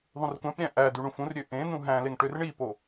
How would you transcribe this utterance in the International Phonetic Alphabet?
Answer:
ðˤ ũ r kʷ æ̃ p ɾʲ æ̃ ʔ æ d y ɳ ũ f ũ r ɾʲ ø ʔ ẽ n ũ ɦ æ̃ l e ŋ ʈ ø r ɳ i p o

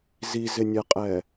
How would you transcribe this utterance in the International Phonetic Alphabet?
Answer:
z i z ɪ nʲ ɛ qʼ ɛ

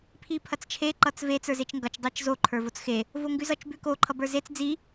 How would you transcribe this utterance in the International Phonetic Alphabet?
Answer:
pʰ i pʰ ɐ t͡s t͡ʃʰ e ǃ ʌ t͡s v e t͡s ə˞ z e t͡ʃ ŋ ɡ ʌ t͡ʃ dˤ e t͡ʃ z o ǃʰ ə˞ v o t͡s x e | v o ŋ ɡ ʉ z ʌ t͡ʃ b ʉ k o ǃʰ ʌ b ə˞ z e t͡s d͡z i

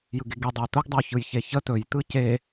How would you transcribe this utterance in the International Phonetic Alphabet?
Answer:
j ɯ ɡ e ɡ i dˤ ə j t̪ ʊ ɡ dˤ ə w ç ɯ j ç e ç ə t̪ ɵ j t̪ ɯ c e

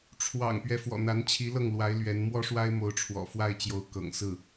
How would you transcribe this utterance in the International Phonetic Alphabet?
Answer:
ʈ͡ʂʰ w ɑ̰˨˩ ŋ p ɥ ɛ˦ f w ɔ̰˨˩ n̪ a˧˥ n t͡ɕʰ i˧˥ l ɤ˥˩ ŋ l w a˧˥ ɪ̯ l ɥ ɛ˧˥ n m w ɔ˥ ʂ w a˥ ɪ̯ m o˧˥ ʊ̯ ʈ͡ʂʰ w ɔ̰˨˩ f w a˥˩ ɪ̯ t͡ɕ j o˧˥ ʊ̯ k ɤ̰˨˩ ŋ s ɹ̩˥˩

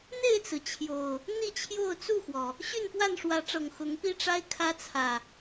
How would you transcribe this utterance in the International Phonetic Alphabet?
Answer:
n̪ e˥˨ ɪ̯ t͡s ɹ̩˩ t͡ɕʰ j o˨˩ ʊ̯ | n̪ i˥˨ t͡ɕʰ j o˥˨ ʊ̯ t͡s u˥˨ x w ɔ˩ | ɕ y˥˨ n p w a˥˨ n ʂ w ä˨˦ ʈ͡ʂ ɤ˨˩ ŋ x ʊ˨˦ ŋ p i˦ ʈ͡ʂ a˦ ɪ̯ kʰ ä˦ t͡sʰ ä˨˩

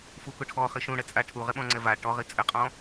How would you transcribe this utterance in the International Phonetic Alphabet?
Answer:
f u k ʊ ʈʰ ɔ χ i ʃ ũ ɽ ɛ t͡sʼ a ʈʰ u ʁ ɪ ɓ ɔ̃ ŋ͡ǀ ɛ v a ʈ ɔ ʁ i t͡sʼ ɪ qʼ ɔ̃

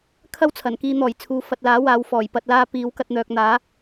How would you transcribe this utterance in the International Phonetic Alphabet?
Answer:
kʰ ɐ˥ w t͡sʰ ɐ˨˩ n k iː˧ n̪ ɔː˨˩ j t͡sʰ uː˨ f ɐ˨ t̚ l aː˨˥ w aː˨ w f ɔː˨˩ j p ɐ˨ t̚ l aː˧ p iː˨˧ w k ɐ˧ t̚ n̪ œː˨ k̚ n̪ aː˨˥

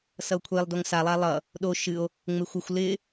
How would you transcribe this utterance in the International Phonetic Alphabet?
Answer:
s ʌ o̯ kʷʰ e lˠ d o ŋ s a lˠ a lˠ ʌ | ɗ o ʃ ɨ o̯ | ŋ͡m e xʷ ʌ xʷ l ɪ

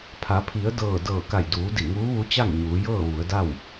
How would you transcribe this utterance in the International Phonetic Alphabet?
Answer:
pʰ a˩˧ pʰ i˩˧ ə̯ d ɤː˧˩ d ɤː˧˩ k a˧˩ j d uː˩˧ d i˧˩ ŋ uː˧˥ ʋ u˧˥ t͡ɕ a˥˨ ŋ ɲ uː˩˧ j ɤː˥˨ ʋ u˩˧ ə̯ d a˥˨ w

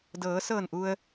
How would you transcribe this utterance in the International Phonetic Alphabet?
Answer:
d ɤː˩˧ s ɤː˧˩ n ʔ u˩ ə̯

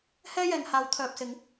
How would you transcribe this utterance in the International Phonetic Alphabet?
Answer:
h ɛː˥ j ɛː˨ ŋ h aː˨˧ w t̪ʰ œː˨ p̚ s ɪ˨˧ ŋ

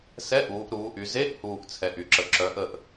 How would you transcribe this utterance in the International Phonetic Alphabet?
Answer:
s ɛ˧˥˧ ʔ uː˩˧ ʔ ɾ uː˩˧ ʔ y˩˧ z e˧˥˧ ʔ h uː˨˩ ʔ t͡sʰ ɛ˨˩ ʔ y˨˩ ǁ ə˨˩ ǁ œ˩˧ ʔ ə˨˩ ʔ

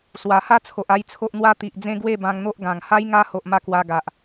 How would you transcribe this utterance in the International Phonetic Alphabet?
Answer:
s w a˨˩ h a˥˧ t͡sʰ o˨ ʔ a˥˧ j t͡sʰ o˦ ʔ n̪ w a˦ t̪ i˨ ʔ d͡z ẽ˦ ɡ w e˥˧ b ã˧ ŋ n̪ o˦ ʔ ɡ ã˨˩ ŋ h a˦ j ŋ a˦ h o˨ ʔ m a˧ k w a˧ ɡ a˨ ʔ

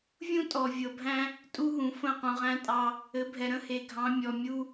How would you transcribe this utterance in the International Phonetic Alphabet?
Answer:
vʲ ũ˦ tʼ ɔ˨ vʲ ɤ˨ bʱ æ̃˦ | tʼ u˦ ɦ ũ˨ f ə̃˦˨ q ũ˨ ʁ æ̃˦ tʼ ɑ˦ | ɘ˨˦ bʱ ɛ˨ ɾ ə̃˦ h e˨ ɡʱ ɑ̃˨˦ mʲ ɔ˨ mʲ u˦

